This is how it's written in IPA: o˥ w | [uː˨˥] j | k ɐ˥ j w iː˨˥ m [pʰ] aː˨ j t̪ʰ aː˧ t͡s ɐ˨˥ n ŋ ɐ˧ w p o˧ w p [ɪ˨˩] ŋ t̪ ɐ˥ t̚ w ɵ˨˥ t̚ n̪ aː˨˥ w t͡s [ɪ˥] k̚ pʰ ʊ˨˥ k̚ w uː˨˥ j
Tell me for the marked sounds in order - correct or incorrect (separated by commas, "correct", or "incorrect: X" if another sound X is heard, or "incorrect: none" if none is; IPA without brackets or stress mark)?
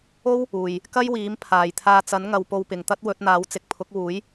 incorrect: uː˨, correct, incorrect: ɪ˨, incorrect: ɪ˨